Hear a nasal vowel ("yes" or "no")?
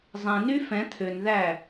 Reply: yes